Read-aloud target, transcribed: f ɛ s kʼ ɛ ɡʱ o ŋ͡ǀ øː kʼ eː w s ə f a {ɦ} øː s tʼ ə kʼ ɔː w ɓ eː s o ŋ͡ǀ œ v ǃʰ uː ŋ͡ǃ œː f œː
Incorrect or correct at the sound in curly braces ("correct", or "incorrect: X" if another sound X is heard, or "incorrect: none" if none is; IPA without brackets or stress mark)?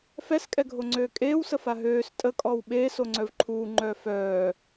correct